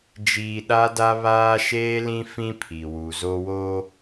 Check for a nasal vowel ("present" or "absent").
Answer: present